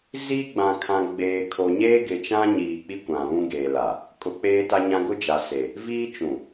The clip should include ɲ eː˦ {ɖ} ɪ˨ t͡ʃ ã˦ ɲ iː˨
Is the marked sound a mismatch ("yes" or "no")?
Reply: yes